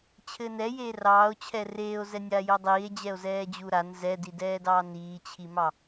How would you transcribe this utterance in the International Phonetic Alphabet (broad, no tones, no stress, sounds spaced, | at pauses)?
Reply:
t͡ɕʰ ɘː n ɛ j eː r ɑː o̯ t͡ɕʰ ɛ r eː o̯ z ɛ nʲ aː j o dˤ iː e̯ d͡ʑ ɛ o̯ z ɛː d͡ʑ u ɾ a n z ɛ d i d ɛː d ɑː n iː t͡ɕʰ i m ɑ